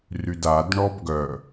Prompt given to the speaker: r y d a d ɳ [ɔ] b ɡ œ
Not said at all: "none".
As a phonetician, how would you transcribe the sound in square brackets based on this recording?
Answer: ɔ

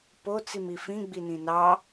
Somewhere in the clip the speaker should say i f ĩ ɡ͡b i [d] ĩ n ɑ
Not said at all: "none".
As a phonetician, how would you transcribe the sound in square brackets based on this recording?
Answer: n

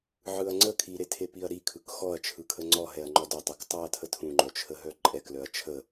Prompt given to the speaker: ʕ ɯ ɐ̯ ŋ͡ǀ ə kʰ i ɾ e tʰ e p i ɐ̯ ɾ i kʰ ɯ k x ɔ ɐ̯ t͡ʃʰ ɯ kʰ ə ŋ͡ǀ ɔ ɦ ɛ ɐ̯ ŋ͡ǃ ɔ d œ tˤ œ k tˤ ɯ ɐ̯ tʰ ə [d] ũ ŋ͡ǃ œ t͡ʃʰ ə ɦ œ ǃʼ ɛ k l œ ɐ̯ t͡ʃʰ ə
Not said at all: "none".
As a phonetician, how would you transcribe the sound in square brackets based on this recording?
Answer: tʰ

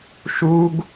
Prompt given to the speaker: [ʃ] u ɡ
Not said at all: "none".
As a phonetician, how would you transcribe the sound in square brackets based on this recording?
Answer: ʃ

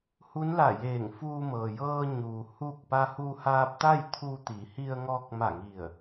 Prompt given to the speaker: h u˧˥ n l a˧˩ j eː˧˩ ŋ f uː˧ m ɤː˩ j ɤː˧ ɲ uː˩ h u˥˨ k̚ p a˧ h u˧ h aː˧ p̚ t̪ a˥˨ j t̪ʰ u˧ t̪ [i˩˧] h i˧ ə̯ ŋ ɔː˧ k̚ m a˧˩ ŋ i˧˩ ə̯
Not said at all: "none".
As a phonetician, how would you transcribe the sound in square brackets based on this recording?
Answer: i˩˧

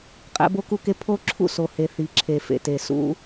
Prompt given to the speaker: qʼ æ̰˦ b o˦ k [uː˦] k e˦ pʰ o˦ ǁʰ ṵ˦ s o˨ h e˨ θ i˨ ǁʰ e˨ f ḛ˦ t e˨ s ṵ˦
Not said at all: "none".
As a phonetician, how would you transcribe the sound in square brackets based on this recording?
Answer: u˦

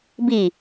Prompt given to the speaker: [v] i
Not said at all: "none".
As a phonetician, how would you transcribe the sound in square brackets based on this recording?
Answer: b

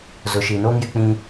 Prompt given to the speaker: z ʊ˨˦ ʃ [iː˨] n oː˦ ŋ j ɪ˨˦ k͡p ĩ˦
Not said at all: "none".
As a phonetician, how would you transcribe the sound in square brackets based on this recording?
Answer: iː˨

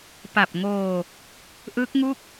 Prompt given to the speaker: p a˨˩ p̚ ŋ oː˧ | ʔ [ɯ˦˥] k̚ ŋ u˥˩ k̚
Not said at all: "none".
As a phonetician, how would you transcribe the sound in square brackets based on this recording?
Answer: ɯ˦˥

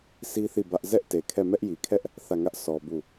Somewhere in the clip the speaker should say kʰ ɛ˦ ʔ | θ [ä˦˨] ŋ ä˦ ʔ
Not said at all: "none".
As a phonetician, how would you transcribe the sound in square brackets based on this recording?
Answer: ä˦˨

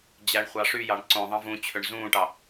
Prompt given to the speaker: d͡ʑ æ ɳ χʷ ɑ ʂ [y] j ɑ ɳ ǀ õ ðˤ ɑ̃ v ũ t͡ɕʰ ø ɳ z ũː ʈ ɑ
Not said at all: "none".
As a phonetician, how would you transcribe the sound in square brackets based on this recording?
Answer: y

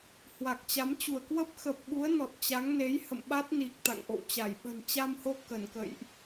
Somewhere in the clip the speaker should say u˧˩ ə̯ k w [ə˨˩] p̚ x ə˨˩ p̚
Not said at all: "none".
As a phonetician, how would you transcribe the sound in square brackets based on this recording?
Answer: ə˦˥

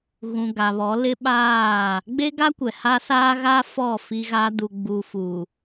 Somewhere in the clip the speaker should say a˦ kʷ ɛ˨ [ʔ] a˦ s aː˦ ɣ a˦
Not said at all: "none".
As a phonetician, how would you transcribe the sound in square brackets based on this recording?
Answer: h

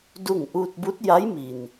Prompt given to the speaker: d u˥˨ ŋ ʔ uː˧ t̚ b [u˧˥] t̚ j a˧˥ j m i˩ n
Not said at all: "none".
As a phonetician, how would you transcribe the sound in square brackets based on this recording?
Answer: u˧˥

